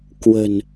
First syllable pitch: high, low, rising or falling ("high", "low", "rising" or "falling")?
low